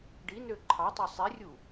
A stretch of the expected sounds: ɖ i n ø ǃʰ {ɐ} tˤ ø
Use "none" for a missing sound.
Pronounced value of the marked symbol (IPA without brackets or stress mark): ɑ